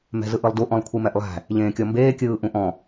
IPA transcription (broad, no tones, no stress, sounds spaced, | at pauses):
m ɛ̤ z ɯ ʔ ɯ lˠ d u ʔ ɔ̃ lˠ kʷʰ ɯ m ɛ ʔ lˠ æ̤ | ʎ ẽː kʲ ɔ m b eː kʲ ɯː ʔ ũ ʔ ɔ̃